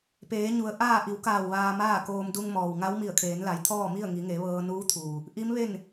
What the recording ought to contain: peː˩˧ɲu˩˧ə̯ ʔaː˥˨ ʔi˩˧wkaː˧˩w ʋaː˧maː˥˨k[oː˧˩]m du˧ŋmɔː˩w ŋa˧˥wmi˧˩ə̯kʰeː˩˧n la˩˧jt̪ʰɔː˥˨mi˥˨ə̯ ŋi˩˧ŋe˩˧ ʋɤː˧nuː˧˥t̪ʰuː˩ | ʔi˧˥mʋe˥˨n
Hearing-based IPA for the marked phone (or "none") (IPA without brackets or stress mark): oː˧